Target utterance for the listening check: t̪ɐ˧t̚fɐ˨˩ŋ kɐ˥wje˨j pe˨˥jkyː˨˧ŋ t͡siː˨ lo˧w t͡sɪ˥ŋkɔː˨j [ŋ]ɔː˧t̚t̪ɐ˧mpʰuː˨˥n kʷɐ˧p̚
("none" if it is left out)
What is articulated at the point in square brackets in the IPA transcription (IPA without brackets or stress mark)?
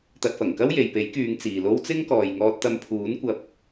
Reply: ŋ